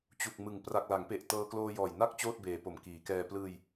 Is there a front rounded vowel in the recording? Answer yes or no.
no